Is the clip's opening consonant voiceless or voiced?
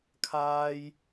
voiceless